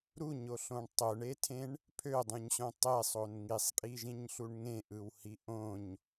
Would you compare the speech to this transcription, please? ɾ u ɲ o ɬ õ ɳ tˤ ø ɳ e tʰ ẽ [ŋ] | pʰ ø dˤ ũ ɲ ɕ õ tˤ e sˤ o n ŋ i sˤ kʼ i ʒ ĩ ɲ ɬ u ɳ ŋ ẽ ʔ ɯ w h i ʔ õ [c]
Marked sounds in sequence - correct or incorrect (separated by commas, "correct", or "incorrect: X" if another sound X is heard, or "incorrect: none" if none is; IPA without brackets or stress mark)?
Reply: incorrect: ɳ, incorrect: ɲ